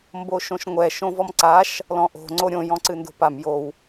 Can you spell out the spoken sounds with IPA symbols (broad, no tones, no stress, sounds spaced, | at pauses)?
m b o ʃ õ ʃ ŋʷ ɛ ʃ õ v ɔ m ǀ a ʃ | l ɔ̃ ʔ o̤ ŋ͡ǀ o ɾʲ õ j ɔ̃ ǀ ɨ n d o̤ p a m j o w